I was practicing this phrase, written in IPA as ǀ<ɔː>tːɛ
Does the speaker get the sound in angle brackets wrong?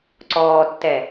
no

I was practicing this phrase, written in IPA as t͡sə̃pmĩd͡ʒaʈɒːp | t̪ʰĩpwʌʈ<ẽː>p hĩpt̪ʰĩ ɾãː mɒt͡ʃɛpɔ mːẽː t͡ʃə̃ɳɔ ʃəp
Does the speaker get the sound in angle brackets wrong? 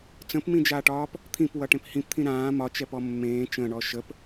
yes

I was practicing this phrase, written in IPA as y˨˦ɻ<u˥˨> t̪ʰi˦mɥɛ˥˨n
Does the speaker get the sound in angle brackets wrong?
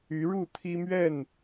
no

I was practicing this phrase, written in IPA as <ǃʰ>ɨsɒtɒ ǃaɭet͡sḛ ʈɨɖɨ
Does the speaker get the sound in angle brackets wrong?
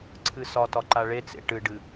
yes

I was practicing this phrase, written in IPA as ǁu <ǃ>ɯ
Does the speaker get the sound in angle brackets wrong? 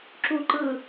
no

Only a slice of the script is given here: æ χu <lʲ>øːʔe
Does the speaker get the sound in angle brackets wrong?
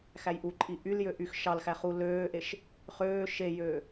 yes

